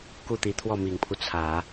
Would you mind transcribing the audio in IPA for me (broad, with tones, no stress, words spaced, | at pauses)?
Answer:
ku˥˩t̪i˧˥t̪ʰwɔ˥˩ mi˨˩ŋpʰu˦t͡sʰä˨˩˦